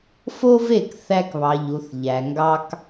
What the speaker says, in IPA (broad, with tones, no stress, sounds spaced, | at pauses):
f o˦ v e˦˨ k θ æ˧ k β ɑ˨ ʎ u˨ θ ʎ æ˨ ŋ ɡ ɑ˦ k